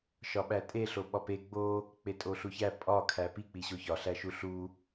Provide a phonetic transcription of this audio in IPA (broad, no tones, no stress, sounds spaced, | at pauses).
ʃ ɒ ɓ æ tʼ e ɬ o ɓ ɒ p e ɡ͡b o | k͡p e tʼ o ɬ u ç æ pʼ ɒ kʰ æ p i k͡p i ɕ o ç ɒ ɬ æ ʃ u ɬ u